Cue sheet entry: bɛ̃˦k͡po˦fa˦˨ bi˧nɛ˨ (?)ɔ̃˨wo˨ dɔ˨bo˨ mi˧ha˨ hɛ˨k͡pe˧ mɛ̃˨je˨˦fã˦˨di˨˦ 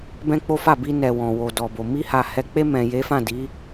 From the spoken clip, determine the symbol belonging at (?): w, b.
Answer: w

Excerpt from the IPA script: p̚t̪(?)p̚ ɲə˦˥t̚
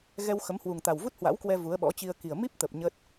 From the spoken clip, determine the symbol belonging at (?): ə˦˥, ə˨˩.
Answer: ə˨˩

